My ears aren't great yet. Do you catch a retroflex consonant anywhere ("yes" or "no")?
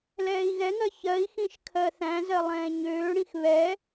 yes